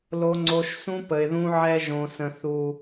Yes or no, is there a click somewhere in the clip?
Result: yes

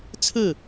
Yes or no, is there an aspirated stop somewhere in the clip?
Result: yes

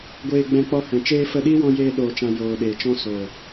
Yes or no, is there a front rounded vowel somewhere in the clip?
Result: no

